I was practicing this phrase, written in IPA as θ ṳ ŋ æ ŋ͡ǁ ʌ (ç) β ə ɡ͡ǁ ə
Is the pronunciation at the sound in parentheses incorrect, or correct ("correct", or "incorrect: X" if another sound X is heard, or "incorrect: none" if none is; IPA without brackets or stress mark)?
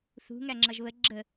incorrect: ʒ